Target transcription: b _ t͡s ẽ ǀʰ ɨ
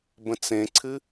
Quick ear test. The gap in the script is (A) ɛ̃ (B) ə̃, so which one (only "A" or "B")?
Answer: B